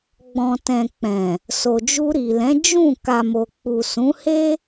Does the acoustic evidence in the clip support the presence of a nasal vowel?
yes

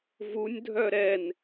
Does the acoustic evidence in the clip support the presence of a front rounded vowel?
yes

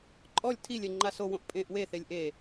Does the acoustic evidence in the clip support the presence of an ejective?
yes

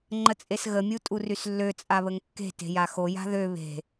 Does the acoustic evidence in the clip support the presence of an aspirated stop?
no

